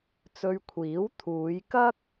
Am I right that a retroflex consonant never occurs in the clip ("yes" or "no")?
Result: yes